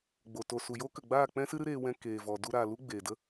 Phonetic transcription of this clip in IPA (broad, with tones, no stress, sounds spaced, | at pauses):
ɡ͡b o˨ t o˨ s u˨ j o˦ k ə˨ ɡ͡b aː˦˨ k͡p ɛ̃˦ s ɨ˦ ɾ ɨ˦ ɾ eː˧ w ɛ̃˧ k eː˨ v ɔ˨ d u˧ ɾ aː˨ l u˦ ɡ͡b eː˨ d ə˦